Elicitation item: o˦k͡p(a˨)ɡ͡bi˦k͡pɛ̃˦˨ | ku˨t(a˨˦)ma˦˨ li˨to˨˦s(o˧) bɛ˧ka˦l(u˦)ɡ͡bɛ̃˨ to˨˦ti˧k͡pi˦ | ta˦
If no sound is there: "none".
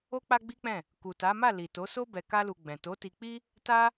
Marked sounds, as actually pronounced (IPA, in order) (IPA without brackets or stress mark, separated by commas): a˦, a˨˦, o˦, u˧